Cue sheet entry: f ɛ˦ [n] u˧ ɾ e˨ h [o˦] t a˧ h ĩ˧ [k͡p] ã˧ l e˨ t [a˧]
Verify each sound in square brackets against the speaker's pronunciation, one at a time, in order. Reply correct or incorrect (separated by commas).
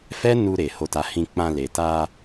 correct, incorrect, correct, correct